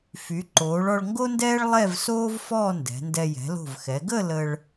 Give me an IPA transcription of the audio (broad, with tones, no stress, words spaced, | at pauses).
fy˩˧ǃoː˩˧ɭ ɔ˧ɭŋɡo˥ndɛː˥ɭ lˠɛ˥˧vsoː˥v fɔː˥˧ndɛ̤˩˧ndɛ˧ jɛ̤˩˧lo̤˧˩vxɛ˩˧ ɡə˥˧ lə˧ɭ